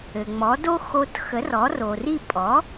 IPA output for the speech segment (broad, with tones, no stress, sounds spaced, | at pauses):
ɘ˩ ŋ͡m ɔ˩˥ d o˥ x o˧ t x ə˩˥ r ɔ˩˥ r o˩ r i˥˩ pʼ ɔ˩˥